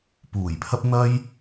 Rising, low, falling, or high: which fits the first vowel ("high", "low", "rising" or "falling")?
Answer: low